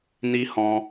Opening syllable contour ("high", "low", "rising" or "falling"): high